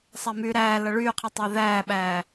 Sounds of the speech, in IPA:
sˤæmyːɾæː lʌɭyːqʰitˤæ ðæːɓæː

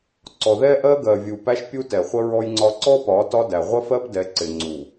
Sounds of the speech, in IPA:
ǀɔ˨ðɛ˦ʔɜ˦ ɡɜ˨ vʲu˨pæ˦ʃ pʲu˦tɛ˨χʷə˦ ɹɔ˦jŋ͡ǀɒ˦ ǀɔ˦pɒ˨˦ tɒ˦dæ˨ ʁʷə˦fɜ˦pdɛ˨˦ǀɪ˨ ŋ͡ǀu˨

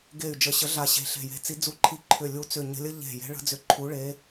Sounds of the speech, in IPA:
ɡe˧˩y̯ d͡ʒə˧˩ɕə˧˥ɮa˧˩ɕe̤˧˩ ɬe̤˧˩je̤˧˥t͡si˧˥ d͡zu˧˩ǃʰi˧˩ ǃʰʏ˧˩lʲu˧˥t͡sʏ˧˩ ɲə̤˧˥lʲə˧˥ ʎe̤˧˩ je̤˧˥ɭə̤˧˥d͡zʏ˧˥ ǃʰu˧˥ɭe˧˥

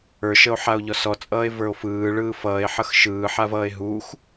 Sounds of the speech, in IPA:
ə˞ʃəo̯ ħao̯ʎɔsɔt͡sʼʌːe̯ və˞o̯fɯː ɭɯːfʌːe̯ħʌx ʃɯːħavʌːe̯ ɦux

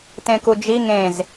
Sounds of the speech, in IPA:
tẽkud͡ʒi ŋẽz

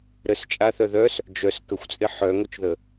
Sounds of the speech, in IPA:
ɾəst͡ʃʼaθœ ðœs | d͡ʒœs kəxʷt͡sʼɪ ħœŋot͡ʃðə

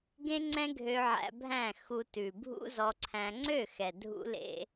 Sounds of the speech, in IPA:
ɡẽ˦ŋ͡ǀɛ̃˦ ɡʱø˧ʕæ̰˧bʱæ̃˦˨xu˧ tʉ˨bʱṵ˦zɔ˧ǀʰæ̃˧ ŋ͡ǀø˦˨xɛ˨ dʱṵ˦lḛ˦

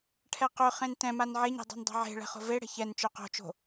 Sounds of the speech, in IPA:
ʈʰɛqøχẽn tɛ̃man ʕeɲe̤ dˤɛ̤ndˤɛ̤ʕe̤ɭɛ̤ χo̤veɽɛ̤ çɛn t͡ʃøqo̤t͡ʃo̤

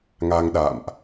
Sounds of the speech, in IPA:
ŋa˧ŋɗa̰˧˨mʔ

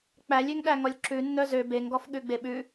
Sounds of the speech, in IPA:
k͡pælʲøŋɗæŋɔlʲ ǁʉnːœ zø beŋɡɔfɠʉɡ͡be ɓʉ

